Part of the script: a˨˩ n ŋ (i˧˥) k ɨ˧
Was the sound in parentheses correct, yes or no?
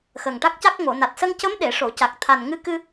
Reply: no